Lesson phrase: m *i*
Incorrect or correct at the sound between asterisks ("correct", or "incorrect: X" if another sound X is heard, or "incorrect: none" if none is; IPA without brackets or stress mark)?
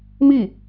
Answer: correct